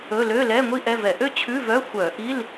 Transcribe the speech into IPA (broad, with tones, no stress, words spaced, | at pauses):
ɵ˧˥˧ lø˧˥˧lɛ˧˥˧ ŋʷi˥ʔɛ˧˥˧vɛ˧˩˧ ʔø˥t͡ɕʰʉ˧˥˧vœ˧˥˧ xʷœ˧˩˧ʔi˧˥˧l